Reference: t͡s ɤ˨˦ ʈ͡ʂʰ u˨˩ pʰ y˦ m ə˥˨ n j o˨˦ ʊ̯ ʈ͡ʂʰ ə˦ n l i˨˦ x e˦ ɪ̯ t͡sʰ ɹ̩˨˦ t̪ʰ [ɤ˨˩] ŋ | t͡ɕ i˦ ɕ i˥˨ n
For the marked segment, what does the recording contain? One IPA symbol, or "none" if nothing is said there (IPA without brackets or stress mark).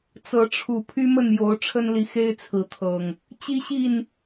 ɤ˨˩